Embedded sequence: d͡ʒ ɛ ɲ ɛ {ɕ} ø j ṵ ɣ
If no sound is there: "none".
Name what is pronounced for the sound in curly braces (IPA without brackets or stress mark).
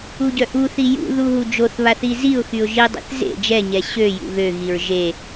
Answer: ɕ